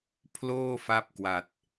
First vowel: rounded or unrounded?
rounded